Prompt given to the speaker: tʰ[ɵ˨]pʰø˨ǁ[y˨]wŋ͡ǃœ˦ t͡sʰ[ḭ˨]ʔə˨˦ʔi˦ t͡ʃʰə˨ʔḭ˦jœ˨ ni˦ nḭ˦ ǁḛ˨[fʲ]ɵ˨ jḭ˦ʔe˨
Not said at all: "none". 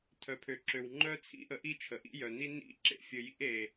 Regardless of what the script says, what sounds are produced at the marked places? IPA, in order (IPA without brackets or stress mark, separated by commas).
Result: œ˨, ø˨, ḭ˦, fʲ